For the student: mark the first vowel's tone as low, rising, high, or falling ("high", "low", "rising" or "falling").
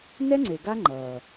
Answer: high